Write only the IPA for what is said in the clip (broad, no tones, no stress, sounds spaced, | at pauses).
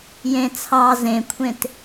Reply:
j ẽ t͡sʰ ɑ z ẽ kʷʰ ẽ t